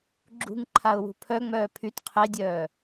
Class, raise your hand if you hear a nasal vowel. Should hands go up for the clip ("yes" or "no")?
no